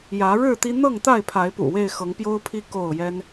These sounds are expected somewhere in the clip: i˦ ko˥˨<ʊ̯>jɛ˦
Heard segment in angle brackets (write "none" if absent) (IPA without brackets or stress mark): ʊ̯